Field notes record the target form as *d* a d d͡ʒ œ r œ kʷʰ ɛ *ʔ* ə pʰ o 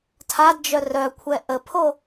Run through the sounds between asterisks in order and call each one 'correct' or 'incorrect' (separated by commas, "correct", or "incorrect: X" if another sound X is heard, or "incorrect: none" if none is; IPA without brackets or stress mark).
incorrect: tʰ, correct